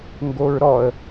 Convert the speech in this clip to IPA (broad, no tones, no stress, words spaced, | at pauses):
ŋɡoɹɾɔə̯